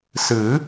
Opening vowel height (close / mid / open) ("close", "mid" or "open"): close